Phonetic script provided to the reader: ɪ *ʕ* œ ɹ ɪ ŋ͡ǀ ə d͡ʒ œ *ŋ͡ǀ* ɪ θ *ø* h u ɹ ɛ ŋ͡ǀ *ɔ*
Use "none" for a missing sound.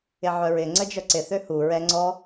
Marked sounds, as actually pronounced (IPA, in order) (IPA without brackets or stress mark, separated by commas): ʕ, ǀ, ø, ɔ